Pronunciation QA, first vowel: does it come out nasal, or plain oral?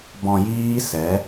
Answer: nasal